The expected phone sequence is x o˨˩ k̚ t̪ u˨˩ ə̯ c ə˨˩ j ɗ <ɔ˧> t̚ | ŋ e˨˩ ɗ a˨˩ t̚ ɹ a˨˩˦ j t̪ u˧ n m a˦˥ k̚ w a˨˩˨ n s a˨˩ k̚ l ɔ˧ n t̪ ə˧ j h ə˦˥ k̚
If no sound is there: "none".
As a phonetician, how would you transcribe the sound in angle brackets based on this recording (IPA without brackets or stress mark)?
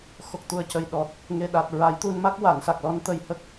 ɔ˨˩